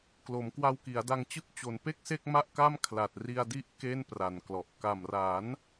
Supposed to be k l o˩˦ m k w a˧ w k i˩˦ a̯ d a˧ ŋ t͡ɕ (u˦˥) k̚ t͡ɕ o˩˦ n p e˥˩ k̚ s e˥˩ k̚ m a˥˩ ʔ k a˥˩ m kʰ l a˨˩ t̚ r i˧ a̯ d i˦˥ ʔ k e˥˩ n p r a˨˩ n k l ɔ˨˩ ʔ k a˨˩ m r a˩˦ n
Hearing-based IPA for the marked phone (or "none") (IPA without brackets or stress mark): ɯ˦˥